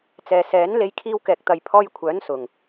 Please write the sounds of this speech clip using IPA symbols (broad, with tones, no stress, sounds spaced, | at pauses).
t͡s ɛː˨ s ɛː˨˥ n l e˧ j kʰ iː˧ w k ɛː˨ k̚ t̪ ɐ˨ j pʰ ɔː˧ j kʷʰ œː˨˥ n s ʊ˨ ŋ